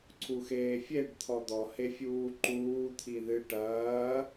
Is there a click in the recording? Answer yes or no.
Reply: yes